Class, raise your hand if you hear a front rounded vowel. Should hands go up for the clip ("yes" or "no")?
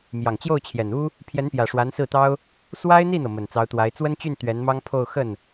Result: yes